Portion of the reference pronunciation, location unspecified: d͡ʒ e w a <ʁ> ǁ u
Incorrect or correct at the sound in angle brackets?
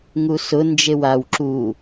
incorrect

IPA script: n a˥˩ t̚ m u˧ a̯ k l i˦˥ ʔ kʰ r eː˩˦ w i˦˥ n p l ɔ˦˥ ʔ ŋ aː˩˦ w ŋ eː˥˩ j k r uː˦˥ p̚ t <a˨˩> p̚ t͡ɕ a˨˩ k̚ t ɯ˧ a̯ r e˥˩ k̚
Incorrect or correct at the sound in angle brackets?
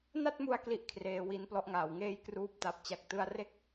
correct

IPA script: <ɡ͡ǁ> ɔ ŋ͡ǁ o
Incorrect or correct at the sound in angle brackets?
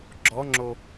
correct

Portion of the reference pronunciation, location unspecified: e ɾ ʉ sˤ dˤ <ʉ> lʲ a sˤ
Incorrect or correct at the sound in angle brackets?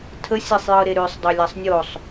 incorrect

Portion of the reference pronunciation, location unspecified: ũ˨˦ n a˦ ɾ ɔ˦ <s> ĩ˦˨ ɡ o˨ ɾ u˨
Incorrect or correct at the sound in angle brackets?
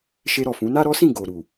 correct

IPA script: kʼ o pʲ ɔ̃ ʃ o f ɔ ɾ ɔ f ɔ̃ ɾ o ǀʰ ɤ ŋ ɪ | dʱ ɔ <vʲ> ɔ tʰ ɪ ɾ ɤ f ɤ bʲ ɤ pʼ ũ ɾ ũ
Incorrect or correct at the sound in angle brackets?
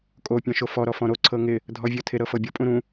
correct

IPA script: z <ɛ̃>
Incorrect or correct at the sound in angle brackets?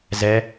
incorrect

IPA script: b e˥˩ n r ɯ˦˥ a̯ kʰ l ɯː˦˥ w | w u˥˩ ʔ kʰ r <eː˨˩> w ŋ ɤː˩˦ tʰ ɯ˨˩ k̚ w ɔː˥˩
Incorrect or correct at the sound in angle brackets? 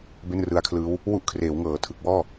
incorrect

